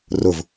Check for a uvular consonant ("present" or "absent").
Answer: absent